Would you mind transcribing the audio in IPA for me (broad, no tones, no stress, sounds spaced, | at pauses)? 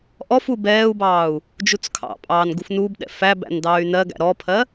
ʔ ɔ f u b ɛː u̯ b ɑː u̯ | d͡ʒ u t͡s kʰ ɑ̰ pʼ ɑː n ɡ u f n u b ɗ ɛ̰ f æ b æ̰ n d ɑː y̯ n ɜ ɡ æ̰ ɾ ɔ pʰ ɜ